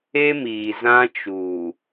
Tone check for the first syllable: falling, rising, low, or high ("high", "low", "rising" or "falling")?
high